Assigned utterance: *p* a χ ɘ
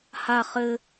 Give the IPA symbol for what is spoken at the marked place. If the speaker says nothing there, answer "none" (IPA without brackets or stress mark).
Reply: h